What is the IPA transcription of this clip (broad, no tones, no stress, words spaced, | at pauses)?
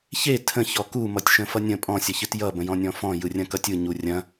çe tʰə̃çɔ ku mʌtʲʃə̃fʌnʲə̃ pʼɔ̃sʲʌçɨt jʌ bə̃jɔ̃nʲɔ̃fɔ̃ jɯrʲɐ̃kʌtʲɯ ɲurʲɐ̃